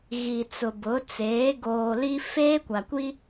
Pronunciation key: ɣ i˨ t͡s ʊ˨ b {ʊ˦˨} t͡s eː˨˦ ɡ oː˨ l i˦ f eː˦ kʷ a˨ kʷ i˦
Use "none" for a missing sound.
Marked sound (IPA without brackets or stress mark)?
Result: ʊ˨˦